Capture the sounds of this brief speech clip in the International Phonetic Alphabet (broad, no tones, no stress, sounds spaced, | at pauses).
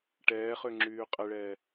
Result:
ʈ ɛː χ ø ŋ͡ǁ yː qʼ ɛ ɭ ɛː